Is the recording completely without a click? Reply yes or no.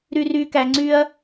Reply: no